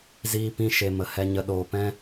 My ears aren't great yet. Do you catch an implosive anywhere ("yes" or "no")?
yes